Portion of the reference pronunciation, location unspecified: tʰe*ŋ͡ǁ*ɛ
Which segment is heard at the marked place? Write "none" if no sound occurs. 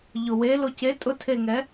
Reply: ŋ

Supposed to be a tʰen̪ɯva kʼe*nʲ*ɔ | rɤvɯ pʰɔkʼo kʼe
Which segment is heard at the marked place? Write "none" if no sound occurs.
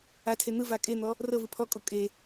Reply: n̪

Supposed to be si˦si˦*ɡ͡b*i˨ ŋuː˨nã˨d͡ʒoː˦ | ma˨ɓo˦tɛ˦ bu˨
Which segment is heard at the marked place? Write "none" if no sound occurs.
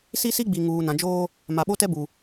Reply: ɡ͡b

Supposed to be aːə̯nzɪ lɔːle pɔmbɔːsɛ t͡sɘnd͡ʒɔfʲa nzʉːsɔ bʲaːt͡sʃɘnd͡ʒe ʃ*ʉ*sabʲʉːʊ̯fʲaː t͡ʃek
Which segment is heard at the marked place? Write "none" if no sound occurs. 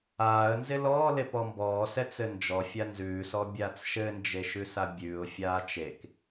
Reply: ʉ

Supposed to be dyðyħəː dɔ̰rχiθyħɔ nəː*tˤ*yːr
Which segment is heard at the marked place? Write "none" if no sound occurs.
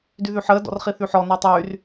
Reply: tˤ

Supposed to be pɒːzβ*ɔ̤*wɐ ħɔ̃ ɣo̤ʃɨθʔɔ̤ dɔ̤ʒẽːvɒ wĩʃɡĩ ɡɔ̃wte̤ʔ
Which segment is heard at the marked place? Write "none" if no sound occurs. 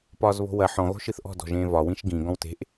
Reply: o̤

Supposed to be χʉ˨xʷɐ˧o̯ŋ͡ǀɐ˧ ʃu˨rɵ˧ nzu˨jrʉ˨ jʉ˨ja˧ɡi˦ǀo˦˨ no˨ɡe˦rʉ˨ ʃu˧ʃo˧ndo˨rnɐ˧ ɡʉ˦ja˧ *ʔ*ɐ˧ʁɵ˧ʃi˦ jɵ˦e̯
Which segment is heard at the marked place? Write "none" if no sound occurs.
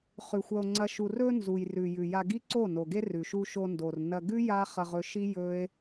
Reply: χ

